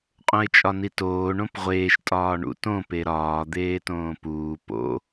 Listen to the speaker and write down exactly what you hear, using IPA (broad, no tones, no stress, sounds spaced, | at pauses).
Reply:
qʼ õ ɪ̯ t͡ʃʼ ɒ n i t oː ɳ õ p ʁʷ eː ʃ tʼ ɒː ɳ ṵ t õ p e ɾ ɒː d̪ eː t õː p uː p o̰